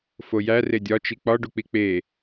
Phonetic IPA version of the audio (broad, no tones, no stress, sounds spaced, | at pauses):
f o j æ r e dʲ ɒ t͡ʃ i k͡p ɒ ɖ u k͡p i k͡p e